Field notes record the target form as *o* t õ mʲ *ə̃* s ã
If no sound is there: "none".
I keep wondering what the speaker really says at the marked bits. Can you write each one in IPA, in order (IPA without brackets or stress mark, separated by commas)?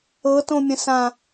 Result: ɤ, ə̃